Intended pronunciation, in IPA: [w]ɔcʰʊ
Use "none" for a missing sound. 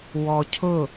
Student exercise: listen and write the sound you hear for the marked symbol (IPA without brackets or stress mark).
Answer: w